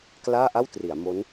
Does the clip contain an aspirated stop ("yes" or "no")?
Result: no